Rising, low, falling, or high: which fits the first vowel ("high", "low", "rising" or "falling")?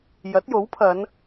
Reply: rising